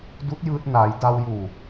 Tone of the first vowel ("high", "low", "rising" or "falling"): rising